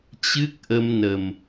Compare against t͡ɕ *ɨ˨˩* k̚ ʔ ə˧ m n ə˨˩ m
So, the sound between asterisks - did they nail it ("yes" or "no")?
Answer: no